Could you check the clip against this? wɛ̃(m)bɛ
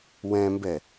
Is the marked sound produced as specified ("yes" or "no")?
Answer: yes